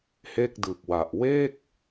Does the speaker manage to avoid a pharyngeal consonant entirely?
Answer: yes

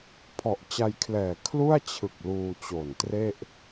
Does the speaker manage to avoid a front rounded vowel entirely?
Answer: yes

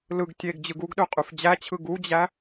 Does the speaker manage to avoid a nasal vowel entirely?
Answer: yes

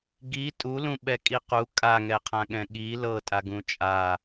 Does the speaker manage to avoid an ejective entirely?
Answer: no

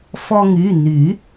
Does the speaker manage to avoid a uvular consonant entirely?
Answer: yes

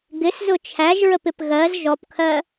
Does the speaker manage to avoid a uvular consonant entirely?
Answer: yes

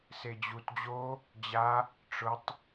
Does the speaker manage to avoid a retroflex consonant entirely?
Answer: no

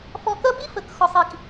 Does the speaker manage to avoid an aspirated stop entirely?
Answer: yes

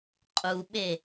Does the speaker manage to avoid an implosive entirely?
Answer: no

